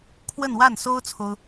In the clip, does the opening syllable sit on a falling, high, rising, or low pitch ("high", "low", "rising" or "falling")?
falling